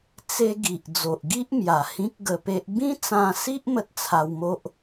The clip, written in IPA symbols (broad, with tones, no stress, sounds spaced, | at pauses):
t͡s e˧ ɡ i˨ ʔ d͡z o˨ ʔ ɡ i˦ ʔ m j a˨˩ h ĩ˦ k̚ ɡ ə˧ p e˦ ʔ b ĩ˦ t͡s ã˧ s i˦ ʔ m ə˦ t̚ t͡sʰ a˧ w m o˦ ʔ